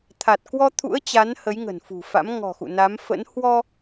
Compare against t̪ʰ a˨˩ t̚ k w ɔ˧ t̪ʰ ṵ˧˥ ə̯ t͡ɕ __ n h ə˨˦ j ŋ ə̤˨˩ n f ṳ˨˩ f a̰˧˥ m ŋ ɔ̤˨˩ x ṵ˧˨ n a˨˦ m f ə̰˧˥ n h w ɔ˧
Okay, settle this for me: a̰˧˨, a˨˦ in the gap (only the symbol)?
a˨˦